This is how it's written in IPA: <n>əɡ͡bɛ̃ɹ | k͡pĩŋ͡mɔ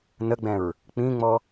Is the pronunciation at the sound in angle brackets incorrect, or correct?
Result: correct